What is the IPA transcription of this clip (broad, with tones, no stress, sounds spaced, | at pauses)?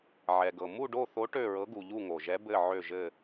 ʕ ɛ˨ ɡ ɤ˨ m u˥˧ ɖ o˥˧ θ o˧˥ ʈ ø˥˧ ɹ ɤ˧˥ ɡ u˨ ʎ u˥˧ ŋ o˨ ʒ ɛ˧˥ b ɘ˥˧ ʕ ø˥˧ ʒ ɘ˥˧